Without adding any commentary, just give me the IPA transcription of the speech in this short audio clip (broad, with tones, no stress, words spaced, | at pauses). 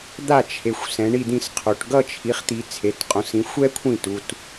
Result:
d̪a˥˩t͡ʃʰe˩˧xʷ sɛ̃˩˧ɳi˥˩d̪ĩ˥˩sqʰo˩˧ʈ ɡʌ˥˧t͡ʃʰi˩˥χ t̪i˩˧t͡sʰe˩˧˩tqʼõ˩˥sĩ˩˥xʷ ɛ˥kʷʰĩ˥˩tu˩˧˩t